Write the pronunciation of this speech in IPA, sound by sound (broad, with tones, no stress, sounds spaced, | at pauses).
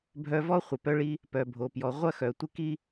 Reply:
bʱ œ˧ v ɔ˦ χʷ ɪ˨ p œ˦ ɭ i˦ | p œ˨ bʱ o˨ p j ɔ˨ ʁʷ ɐ˦ x œ˨ tʷ ɪ˦ k i˦